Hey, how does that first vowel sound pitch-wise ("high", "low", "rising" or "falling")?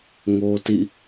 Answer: high